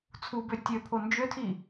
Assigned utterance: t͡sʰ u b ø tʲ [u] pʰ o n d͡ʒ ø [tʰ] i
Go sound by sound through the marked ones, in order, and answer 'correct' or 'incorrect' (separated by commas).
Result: incorrect, correct